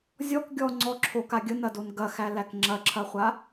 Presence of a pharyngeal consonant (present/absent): absent